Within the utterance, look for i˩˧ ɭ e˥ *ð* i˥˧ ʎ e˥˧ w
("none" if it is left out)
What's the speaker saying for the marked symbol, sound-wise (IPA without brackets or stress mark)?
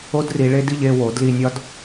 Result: d